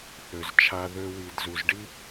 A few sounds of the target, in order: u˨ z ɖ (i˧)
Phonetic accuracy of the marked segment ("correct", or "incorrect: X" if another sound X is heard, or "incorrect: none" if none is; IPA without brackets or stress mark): incorrect: i˦